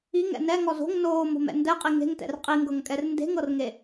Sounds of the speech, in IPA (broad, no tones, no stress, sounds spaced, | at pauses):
i ŋ ɛ̰ n ɛ ŋ ɔ z o̤ ŋ n oː m o̤ m ɛ̰ n d ɛ qʼ i ŋ e̤ ŋ t ɛ̰ r qʼ i ŋ ɡ ɤ ŋ kʼ ɛ r n d e̤ ŋ ɤ r ŋ e